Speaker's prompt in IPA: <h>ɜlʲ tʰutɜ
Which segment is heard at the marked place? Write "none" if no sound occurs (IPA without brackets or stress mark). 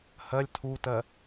h